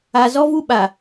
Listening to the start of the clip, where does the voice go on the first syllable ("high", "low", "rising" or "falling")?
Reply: low